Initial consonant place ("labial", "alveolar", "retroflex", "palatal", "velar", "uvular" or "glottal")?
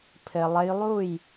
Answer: labial